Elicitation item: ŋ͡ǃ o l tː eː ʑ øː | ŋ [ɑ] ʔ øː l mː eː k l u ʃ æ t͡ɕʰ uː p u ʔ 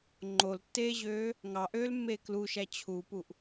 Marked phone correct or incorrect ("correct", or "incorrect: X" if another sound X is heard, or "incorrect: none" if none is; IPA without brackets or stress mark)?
correct